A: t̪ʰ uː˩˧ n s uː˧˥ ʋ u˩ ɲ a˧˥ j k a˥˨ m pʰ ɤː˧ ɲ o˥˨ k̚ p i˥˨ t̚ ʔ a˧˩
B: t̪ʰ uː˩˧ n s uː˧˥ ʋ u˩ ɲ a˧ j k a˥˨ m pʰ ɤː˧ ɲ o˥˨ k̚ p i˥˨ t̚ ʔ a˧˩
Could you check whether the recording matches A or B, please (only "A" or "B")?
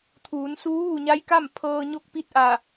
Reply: A